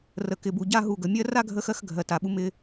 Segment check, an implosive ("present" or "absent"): present